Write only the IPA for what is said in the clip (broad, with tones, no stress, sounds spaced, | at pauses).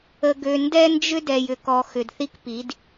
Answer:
ə˨ ɡ ø˨ n d ɛ˦ n d͡ʒ ʏ˦ d ɛ˨ j ʏ˨ k ɔ˨ x ʏ˨ d θ i˦ k p i˨˦ d